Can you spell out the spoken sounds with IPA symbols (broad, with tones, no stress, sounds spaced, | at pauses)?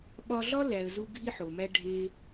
ɓ ɒ˧ ɮ ɒ˦ l æ˨ ə̯ z u˧ ɡʱ i˦ ħ o˨ m æ˦ ɖʱ e˦